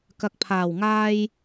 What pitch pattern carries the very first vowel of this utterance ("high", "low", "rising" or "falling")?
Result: low